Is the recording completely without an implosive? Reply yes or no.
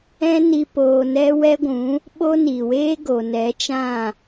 no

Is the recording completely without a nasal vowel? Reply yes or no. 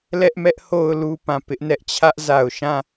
no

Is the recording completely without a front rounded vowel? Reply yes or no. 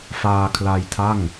yes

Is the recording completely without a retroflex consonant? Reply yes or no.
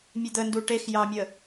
no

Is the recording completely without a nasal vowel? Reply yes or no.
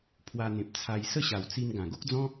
no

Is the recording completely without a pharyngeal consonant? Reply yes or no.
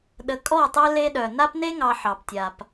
no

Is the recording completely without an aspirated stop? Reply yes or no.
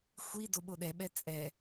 yes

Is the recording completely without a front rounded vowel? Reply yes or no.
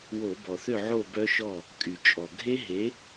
no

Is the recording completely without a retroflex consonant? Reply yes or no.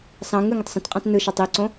yes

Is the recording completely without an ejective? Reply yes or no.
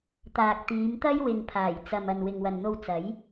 yes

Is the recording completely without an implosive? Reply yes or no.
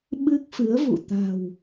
no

